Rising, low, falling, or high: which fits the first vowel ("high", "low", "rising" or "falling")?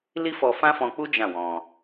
high